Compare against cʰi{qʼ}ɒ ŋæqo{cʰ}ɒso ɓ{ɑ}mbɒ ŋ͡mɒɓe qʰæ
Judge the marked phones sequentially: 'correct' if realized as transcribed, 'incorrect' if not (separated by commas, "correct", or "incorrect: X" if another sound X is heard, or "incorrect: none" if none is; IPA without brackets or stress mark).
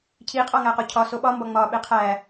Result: correct, correct, incorrect: ɒ